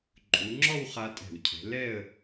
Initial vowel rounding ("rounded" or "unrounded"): rounded